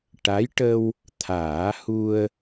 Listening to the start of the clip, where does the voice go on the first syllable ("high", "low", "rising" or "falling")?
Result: rising